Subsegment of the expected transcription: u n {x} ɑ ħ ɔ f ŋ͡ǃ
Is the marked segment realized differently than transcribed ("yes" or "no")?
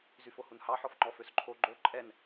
yes